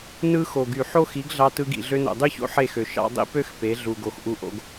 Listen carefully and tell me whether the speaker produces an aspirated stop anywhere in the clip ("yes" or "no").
no